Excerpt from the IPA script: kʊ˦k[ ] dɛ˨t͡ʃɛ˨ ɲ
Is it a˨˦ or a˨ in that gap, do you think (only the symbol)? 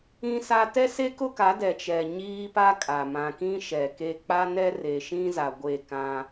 a˨˦